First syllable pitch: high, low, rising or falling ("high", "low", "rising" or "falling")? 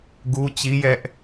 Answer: high